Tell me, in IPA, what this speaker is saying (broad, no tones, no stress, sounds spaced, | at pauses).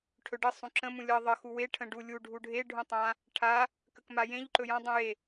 ʈʰ ɵ ɖ ə sˤ ũ ǁ ə̃ m ũ lʲ ʌ ðˤ ə x u w e ʈʰ ə̃ ɖ u lʲ u ɖʱ u ɖʱ e ɖʱ ũ tˤ ã | ʈʰ a | k ə k m a j ẽ ʎ ǃ ɵ j ã dˤ ũ j e